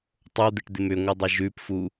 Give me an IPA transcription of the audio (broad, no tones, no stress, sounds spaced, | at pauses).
tˤ o d̪ ɪ ʈ d̪ ɪ m ʏ ŋʷ ɪ dˤ ɪ ʒ ʉ p f u